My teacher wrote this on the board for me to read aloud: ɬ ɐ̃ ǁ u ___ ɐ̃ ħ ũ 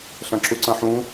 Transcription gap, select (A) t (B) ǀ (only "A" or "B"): B